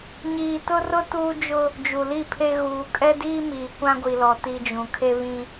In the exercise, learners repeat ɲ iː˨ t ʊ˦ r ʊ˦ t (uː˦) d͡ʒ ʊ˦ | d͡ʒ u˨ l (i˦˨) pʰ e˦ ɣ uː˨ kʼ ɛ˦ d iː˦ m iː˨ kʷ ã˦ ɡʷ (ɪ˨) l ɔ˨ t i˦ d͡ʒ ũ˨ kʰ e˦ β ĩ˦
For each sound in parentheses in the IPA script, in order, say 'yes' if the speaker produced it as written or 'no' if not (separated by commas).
yes, yes, no